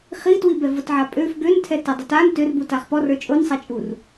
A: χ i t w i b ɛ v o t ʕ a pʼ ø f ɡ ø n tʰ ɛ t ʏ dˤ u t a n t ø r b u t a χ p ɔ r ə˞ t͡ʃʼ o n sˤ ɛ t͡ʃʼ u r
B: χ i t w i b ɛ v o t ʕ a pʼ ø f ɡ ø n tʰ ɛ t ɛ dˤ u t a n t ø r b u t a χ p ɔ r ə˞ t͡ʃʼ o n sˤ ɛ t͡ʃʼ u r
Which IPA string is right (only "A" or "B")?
B